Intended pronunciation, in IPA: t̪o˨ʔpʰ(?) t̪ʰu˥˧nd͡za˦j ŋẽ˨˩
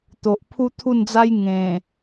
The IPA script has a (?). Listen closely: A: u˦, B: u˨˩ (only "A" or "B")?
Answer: A